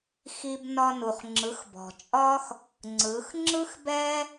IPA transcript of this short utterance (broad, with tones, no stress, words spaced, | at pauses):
xi˧b nɒ˧nu˨χ ŋ͡ǁɯ˨˦xbɔ̤˨ t͡ʃʼɒ˦x | ŋ͡ǀɯ˨˦x ŋ͡ǁɯ˦xbɛ˦